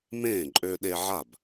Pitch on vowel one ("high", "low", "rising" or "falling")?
falling